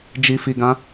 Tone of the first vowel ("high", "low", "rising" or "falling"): low